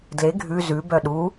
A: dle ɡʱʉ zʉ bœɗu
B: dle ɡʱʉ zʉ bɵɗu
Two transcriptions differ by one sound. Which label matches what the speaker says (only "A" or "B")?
A